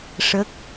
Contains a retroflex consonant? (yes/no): yes